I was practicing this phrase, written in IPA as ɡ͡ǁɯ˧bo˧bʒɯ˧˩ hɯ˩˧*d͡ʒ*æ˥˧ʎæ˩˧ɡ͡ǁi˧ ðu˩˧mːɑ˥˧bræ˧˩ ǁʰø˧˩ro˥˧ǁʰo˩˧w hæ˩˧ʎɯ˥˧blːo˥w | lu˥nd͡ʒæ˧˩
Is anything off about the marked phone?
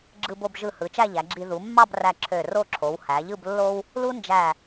yes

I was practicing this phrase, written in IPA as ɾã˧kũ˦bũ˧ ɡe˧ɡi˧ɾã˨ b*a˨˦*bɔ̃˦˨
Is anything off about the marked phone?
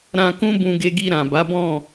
no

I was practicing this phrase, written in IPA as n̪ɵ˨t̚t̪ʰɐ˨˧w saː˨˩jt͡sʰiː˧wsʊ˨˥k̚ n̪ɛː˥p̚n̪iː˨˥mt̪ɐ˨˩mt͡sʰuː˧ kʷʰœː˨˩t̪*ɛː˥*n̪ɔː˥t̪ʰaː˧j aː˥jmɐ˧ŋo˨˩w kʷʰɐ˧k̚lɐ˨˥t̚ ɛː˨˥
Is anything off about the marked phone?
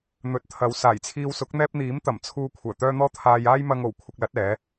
yes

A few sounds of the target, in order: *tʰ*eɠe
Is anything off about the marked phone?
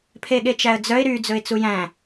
yes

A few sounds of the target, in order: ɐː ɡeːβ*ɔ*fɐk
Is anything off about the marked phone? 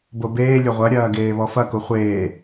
no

